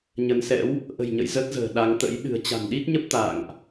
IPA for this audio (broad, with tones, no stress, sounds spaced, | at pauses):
ɲ ə˨˦ n s ɛ̰˧˥ w | ʔ ə̤˨˩ j ɲ ə̰˧˨ j z ə˦˥ t̚ z ə̤ː˨˩ ɗ a˨˦ ŋ t̪ ə̰˧˥ j ɗ ɨ̤˨˩ ə̯ t͡ɕ a̤˨˩ n ɗ i˦˥ t̚ ɲ ə˦˥ p̚ t̪ a̰ː˧˨ ŋ ʔ